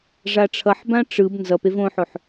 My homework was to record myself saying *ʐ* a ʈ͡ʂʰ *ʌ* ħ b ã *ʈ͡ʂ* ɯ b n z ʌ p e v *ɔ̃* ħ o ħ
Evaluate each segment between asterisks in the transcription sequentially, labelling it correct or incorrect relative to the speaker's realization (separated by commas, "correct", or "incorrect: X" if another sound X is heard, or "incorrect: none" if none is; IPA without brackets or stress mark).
correct, correct, correct, incorrect: õ